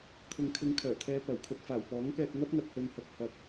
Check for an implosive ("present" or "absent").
absent